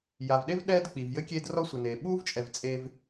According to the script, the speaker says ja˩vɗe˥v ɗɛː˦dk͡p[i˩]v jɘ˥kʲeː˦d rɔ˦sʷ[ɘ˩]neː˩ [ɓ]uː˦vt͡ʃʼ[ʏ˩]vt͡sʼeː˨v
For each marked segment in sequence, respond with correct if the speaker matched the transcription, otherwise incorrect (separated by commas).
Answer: correct, correct, correct, incorrect